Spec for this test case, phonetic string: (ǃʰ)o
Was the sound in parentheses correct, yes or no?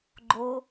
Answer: no